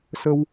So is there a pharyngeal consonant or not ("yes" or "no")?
no